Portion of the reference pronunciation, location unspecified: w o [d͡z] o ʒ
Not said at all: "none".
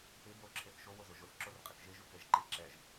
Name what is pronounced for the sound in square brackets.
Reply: z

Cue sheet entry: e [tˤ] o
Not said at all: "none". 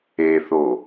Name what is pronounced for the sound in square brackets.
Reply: θ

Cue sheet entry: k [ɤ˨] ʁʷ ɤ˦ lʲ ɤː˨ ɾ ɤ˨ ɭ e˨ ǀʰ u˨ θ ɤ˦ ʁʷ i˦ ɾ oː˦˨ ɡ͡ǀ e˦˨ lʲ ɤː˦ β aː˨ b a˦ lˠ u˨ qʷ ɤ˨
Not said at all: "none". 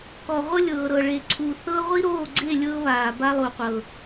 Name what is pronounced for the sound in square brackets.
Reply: ɔ˨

